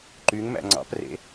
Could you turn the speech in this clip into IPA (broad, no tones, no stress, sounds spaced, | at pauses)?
ǃ y ŋ m æ̰ ŋ͡ǀ ɑ̰ p r ḛ